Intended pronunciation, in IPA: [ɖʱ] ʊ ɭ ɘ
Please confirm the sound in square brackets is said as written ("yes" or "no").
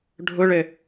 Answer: yes